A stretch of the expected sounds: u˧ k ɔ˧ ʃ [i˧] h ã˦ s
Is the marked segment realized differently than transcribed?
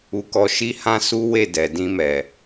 yes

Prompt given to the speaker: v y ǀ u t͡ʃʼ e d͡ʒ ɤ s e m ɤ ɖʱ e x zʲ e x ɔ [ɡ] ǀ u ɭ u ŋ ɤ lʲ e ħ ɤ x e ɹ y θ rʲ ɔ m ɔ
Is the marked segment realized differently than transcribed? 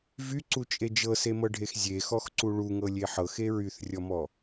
yes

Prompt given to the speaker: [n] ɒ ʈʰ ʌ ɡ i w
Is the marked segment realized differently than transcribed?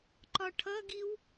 yes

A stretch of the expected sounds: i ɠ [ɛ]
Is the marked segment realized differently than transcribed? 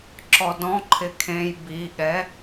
no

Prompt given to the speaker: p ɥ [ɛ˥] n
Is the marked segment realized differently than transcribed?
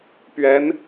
yes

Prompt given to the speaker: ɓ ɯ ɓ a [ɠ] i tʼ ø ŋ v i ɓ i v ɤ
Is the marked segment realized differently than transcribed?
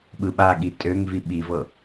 no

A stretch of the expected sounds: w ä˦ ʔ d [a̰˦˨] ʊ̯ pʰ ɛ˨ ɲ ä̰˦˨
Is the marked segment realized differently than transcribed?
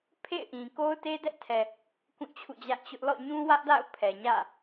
no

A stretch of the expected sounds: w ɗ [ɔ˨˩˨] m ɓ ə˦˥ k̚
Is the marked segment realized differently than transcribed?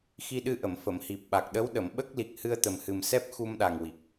yes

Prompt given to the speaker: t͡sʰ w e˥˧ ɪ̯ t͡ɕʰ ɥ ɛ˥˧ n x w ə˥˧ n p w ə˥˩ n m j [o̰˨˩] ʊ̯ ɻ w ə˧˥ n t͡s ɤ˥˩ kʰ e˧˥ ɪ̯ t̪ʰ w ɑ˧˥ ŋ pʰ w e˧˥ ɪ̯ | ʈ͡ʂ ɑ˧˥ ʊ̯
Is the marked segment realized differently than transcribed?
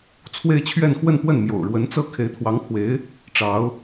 no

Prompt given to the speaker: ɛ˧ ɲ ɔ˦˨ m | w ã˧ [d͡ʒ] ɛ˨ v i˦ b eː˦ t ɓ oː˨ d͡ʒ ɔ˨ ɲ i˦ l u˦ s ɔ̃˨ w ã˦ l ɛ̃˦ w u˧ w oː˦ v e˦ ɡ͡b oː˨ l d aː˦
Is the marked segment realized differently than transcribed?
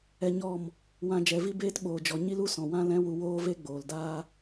no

